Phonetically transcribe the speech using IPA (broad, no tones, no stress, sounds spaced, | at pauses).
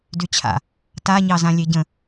d y t͡ɕʰ a̰ | t a ɲ ɑ z ã lʲ e ɟ ə̃